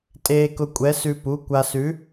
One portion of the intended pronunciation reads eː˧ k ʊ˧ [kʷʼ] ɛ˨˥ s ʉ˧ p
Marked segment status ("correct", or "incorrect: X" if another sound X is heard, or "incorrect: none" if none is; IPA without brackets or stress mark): correct